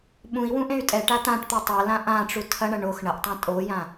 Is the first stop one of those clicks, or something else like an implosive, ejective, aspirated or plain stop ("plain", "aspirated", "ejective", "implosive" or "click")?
implosive